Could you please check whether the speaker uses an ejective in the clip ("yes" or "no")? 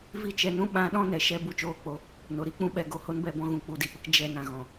no